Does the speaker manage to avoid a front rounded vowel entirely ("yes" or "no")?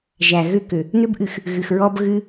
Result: no